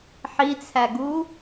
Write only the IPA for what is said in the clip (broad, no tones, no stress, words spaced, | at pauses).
ħit͡sʰæɡu